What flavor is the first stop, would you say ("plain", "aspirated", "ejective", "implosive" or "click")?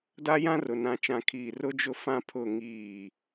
plain